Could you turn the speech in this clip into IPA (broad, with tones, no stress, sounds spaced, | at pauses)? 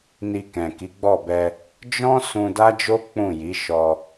n i˧ k ɛ̃˨ k i˨˦ ɡ͡b ɔ˦˨ b ɛ˧ | d͡ʒ ɔ̃˦ s ũ˧ d a˦ d͡ʒ o˦ k͡p ũ˦˨ j i˨˦ ʃ ɔ˧